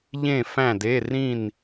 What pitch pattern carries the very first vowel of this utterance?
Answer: falling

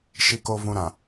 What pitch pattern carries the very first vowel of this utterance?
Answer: low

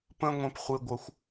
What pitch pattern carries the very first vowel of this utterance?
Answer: high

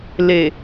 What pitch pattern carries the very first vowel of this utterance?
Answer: low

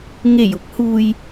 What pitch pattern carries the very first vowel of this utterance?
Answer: low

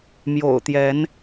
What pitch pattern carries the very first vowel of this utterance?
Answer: low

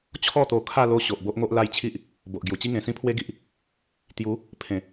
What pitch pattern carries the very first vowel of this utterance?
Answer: falling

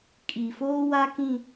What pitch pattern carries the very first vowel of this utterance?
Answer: low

